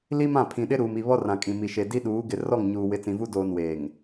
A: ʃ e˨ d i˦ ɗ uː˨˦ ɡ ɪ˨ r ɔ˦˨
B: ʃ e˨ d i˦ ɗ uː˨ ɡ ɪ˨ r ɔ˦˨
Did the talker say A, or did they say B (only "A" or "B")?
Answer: A